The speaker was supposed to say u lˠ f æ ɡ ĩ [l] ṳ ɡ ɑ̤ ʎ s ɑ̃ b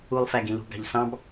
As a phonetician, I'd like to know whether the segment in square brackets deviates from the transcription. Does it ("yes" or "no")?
no